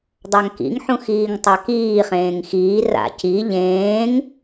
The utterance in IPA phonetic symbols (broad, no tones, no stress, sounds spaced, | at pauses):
dˤ a ŋ k ḭ ŋ ħ ũ x iː ŋ tˤ a k iː χ ẽː ŋ x iː r a̰ c i ʎ ẽː ŋ